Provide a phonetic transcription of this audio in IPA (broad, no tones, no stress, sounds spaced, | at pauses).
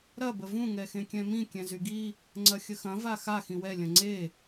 ɾ ɐ b ə v ũ ŋ ɛ x ẽ kʲ ɛ̃ m ĩ kʲ ɛ̃ z y ɡ i | ŋ͡ǀ ɐ xʲ ə x ɐ̃ v a x a x ĩ w ɛ lʲ ɐ̃ ŋ͡ǀ e